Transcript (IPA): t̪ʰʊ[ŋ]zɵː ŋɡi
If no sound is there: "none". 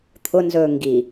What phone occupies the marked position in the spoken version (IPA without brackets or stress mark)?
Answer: n